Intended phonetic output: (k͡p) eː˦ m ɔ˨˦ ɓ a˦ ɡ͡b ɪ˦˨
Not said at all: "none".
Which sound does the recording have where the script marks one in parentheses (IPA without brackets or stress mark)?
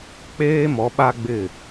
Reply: k͡p